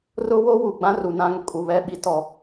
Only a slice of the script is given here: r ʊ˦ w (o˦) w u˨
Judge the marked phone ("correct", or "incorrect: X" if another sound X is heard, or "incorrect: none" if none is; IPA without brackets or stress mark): correct